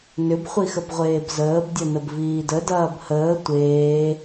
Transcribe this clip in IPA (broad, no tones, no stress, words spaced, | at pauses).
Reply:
nʏbχʷixəbʁʷeːb zəːbdʲɐnəb viːdə dɐːbhəː tʷeː